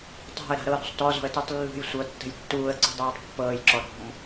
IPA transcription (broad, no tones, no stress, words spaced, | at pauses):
tˤa̤ə̯ɾa̤ ɾɤɾṳsˤ tɔzɔ̤ə̯tutˤ lːṳj sʷɤtːə̤j tːuːə̯ǀṳdˤaːtˤ pːɤːjǁɔ ɾɔ̤m